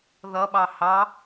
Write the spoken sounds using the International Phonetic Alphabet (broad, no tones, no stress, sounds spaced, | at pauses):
ð ʌ ɓ ɑ h ɑ